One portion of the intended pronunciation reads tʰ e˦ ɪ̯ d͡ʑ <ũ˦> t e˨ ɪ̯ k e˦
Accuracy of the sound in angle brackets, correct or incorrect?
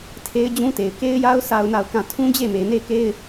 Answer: correct